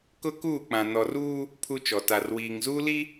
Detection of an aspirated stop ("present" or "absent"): present